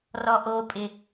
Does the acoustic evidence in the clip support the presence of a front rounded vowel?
no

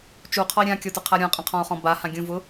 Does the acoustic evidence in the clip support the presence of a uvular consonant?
yes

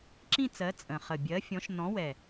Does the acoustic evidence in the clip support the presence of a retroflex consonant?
no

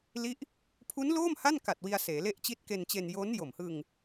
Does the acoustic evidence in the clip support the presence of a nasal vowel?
no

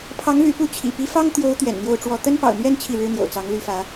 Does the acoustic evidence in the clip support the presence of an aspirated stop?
yes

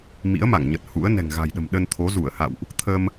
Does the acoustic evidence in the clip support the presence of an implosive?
yes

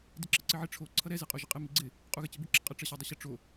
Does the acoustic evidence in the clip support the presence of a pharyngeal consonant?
yes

